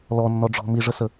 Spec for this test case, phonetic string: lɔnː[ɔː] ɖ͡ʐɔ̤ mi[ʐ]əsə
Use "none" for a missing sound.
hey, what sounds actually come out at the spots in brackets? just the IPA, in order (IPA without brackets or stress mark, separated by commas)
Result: ɔ, ʐ